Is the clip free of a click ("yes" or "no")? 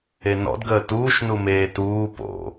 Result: yes